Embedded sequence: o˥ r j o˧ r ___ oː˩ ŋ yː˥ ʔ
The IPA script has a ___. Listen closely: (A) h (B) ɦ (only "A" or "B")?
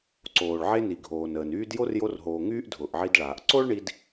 B